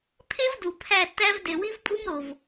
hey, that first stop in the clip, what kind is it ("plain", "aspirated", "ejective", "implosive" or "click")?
aspirated